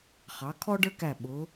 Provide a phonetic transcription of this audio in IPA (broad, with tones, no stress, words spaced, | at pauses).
χɑ˩˧ kʰɔ˥ɖə˞˥kæ˧˩ ɓʊ˩˧